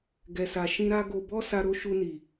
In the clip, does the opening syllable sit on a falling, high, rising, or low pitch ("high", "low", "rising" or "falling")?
low